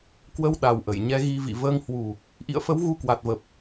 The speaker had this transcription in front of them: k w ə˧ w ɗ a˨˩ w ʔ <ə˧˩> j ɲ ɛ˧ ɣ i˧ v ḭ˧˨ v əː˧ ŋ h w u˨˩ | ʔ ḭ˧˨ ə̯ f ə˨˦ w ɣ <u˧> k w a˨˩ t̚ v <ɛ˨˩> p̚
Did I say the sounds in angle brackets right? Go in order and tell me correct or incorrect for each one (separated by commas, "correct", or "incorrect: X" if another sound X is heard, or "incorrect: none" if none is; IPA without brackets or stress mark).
correct, correct, incorrect: ə˨˩